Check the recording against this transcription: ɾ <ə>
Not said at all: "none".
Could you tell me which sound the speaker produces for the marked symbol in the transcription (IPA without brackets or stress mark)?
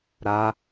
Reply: a